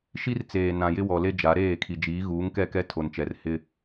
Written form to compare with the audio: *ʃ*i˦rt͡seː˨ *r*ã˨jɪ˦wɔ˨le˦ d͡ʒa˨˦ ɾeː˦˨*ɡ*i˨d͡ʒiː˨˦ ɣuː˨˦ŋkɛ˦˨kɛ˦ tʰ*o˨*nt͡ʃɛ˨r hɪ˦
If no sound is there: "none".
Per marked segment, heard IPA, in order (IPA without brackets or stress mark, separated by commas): ʃ, n, kʰ, o˨